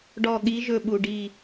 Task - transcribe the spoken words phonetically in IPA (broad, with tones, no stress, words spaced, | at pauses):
ɖɔ˧˩ɠi˨˦ ʒɵ˧˩ɓu˩ ɖi˧˩